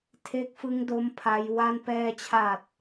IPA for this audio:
tʰ e˦˥ k̚ f ɯ˦˥ ŋ d o˦˥ m pʰ a˦˥ j w a˥˩ n p ɛː˧ t͡ɕʰ a˨˩ t̚

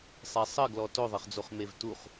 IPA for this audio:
sˤ ɛ sˤ ɘ ɡ l ɔ t o ðˤ ɘ χ d͡z o χ m e v t u χ

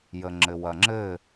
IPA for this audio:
j ə ŋ͡ǁ ɘ w ɐ ŋ͡ǁ ɘ

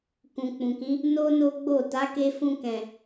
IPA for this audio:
k ũ˨ k͡p ũ˨ k ĩ˨˦ | n o˦ n o˦ ɡ͡b o˦˨ t a˨˦ k e˧ f ũ˧ k ɛ̃˨

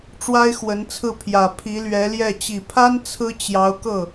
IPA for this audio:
ʈ͡ʂ w a˥ ɪ̯ x w ə˧˥ n t͡sʰ ɹ̩˥˩ pʰ j ä˨˩ pʰ i˧˥ l ɥ ɛ˧˥ l j ɛ˥˩ t͡ɕ i˨˩ pʰ a˥ n t͡sʰ ɹ̩˥ t͡ɕ j ɑ˧˥ ʊ̯ k ɤ˥˩

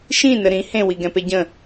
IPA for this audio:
ʃ ĩ n ə ɾ ĩ h ẽ w i ɡ ɛ̃ p e ɟ ə̃

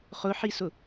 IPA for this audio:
χ ʊ ħ i s ʊ

